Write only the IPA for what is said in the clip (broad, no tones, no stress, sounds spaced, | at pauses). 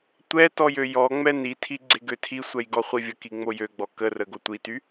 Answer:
tʷ ɛ t ɔ j ø j ɔ ŋ͡m ɛ n i tʰ i ɡ͡ǀ e ɡ ø tʰ i sʷ ɛ j ɡ ɔ χʷ i vʲ ə k i ŋ͡m o j ø ɡ͡b ɔ k ə r ə ɡ o tʷ i t y